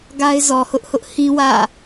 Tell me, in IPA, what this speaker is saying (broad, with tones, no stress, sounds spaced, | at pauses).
ɡ a˦ ɪ̯ z ɔ˨ h ʊ˦ ʔ h ʊ˦ ʔ h ĩ˦ w ä̰˦˨